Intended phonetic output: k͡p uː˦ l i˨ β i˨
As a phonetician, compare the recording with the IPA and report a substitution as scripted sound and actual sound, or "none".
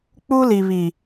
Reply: none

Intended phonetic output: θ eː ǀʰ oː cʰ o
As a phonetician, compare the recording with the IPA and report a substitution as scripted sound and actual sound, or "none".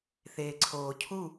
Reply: o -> u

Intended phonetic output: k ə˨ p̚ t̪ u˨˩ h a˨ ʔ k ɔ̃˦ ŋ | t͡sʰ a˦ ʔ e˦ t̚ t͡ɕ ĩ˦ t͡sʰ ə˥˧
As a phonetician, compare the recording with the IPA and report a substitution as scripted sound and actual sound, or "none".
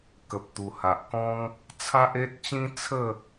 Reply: none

